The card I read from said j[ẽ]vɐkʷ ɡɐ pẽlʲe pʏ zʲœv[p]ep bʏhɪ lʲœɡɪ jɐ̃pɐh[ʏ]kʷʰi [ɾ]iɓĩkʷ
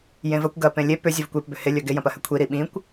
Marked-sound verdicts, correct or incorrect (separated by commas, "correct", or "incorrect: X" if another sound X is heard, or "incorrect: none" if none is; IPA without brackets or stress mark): correct, incorrect: kʷ, correct, correct